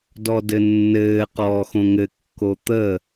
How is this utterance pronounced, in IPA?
d ɔ d ɘ nː ɘː q ɔː x õ ŋ ɘ kː o t̪ ə

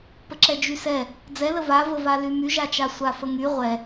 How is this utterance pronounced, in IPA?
p ə ǁ ɛ d͡ʒ y s ɛ | d͡z ɛ l ə v a v ə v a l y m y ʒ a t͡ʃ a sʷ a f ə ŋ y ʁʷ ɛ

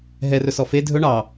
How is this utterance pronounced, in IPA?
ɦ ɛ r ɵ s ɔ f e dʱ ɵ ɳ ɑ

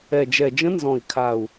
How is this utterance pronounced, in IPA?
ɛ˨˩ d͡ʒ ɛ˨˩ d͡ʒ ə̃˧˥ n z ɔ̃˨˩ i̯ kʰ a˨˩ u̯

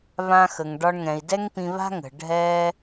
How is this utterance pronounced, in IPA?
β ã˧ x ə˩ ŋ ɖ ɒ˧ ɳ ŋ ɛ̃˩ i̯ d ɛ˥ ŋ p ĩ˧ β a̤˥ ŋ ə̤˩ ɖʱ ɛ˧

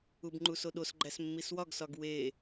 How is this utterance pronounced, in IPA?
u b ŋ͡ǃ u s o ɗ o s ɡ͡ǃ æ s mː i s w ɒ ɡ s ɒ ɡ w e

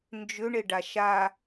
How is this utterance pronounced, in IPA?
n d͡ʒ ʏ ɳ e ɖ a ʃ a

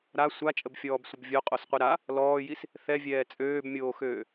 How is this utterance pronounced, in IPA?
ɾ a sʷ a t͡ʃʼ ə b fʲ ɔː b sʷ ə b vʲ o qʼ o s qʷ i ɾ a | l ɔː j i s | θ ɛ vʲ ɛː t͡sʼ øː b mʲ oː x øː

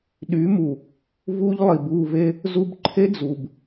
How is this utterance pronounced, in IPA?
ɗ y˨˦ m u˨ | v u˦ ʎ lˠ i˨ b u˦˨ v e˦ | z u˧ b ǃʰ e˦ d͡z u˨ b

